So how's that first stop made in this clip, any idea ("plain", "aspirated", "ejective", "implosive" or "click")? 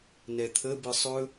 aspirated